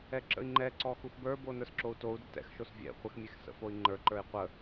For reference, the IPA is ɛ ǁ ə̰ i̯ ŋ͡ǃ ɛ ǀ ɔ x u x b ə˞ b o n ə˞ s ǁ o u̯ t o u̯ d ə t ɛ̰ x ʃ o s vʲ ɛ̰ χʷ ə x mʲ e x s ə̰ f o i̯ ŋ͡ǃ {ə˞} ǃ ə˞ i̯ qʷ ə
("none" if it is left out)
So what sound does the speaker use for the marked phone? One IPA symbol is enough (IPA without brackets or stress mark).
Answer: ə˞